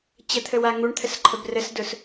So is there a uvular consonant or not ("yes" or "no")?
no